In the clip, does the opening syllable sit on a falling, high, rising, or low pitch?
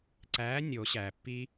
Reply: rising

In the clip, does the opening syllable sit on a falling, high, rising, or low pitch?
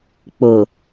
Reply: low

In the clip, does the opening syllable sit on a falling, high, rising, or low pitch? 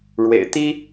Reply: low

